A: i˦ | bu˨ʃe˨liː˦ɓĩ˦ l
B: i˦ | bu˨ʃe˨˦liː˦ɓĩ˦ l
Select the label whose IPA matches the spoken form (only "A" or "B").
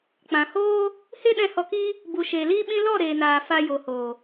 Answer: A